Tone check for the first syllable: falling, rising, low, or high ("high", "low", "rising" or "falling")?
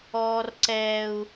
high